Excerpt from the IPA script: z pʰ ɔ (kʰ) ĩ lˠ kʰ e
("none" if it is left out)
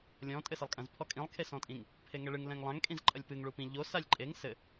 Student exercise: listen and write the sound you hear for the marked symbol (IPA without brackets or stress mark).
kʼ